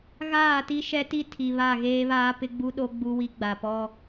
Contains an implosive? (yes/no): yes